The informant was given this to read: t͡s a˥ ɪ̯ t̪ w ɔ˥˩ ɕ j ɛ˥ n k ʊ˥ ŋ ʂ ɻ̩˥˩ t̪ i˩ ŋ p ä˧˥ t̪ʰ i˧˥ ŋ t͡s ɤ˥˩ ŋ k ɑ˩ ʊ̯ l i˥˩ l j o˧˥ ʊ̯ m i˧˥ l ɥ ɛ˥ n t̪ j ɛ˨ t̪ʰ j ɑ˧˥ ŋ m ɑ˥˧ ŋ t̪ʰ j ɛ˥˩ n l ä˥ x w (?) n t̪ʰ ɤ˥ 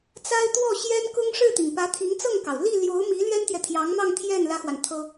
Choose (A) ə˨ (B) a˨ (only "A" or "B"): B